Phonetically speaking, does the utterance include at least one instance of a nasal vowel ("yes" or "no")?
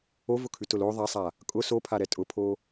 no